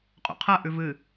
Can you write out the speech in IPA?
qʼ ṵ qʰ ɐ ʔ ʉ v ɨ

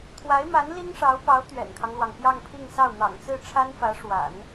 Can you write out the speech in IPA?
t̪ʰ w a˧˥ ɪ̯ m a˧˥ n l i˥ ŋ ʂ ɑ˧˥ ʊ̯ p ɑ˧˥ ʊ̯ t̪ ɥ ɛ̰˨˩ n kʰ ɑ˦ ŋ l w ɑ˩ ŋ p j ɑ˥˧ ŋ pʰ i˥˧ ŋ s ɑ˥˩ ʊ̯ n̪ ɑ̰˨˩ ŋ t͡s ɹ̩˥˩ ʈ͡ʂʰ a˥ n f ä˧˥ ʂ w a̰˨˩˦ n

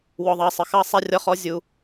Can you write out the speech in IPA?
w ɔ˨ ðˤ ɑ˨ sˤ ə˨ x ɑ˦ sˤ æ˦ rʲ ɒ˦ χ ɔ˦ zʲ u˦

